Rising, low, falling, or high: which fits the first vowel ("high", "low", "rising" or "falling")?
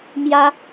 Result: high